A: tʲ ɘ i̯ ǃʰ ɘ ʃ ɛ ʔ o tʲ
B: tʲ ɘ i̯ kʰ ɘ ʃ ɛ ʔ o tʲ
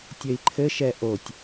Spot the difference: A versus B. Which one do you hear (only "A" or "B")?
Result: A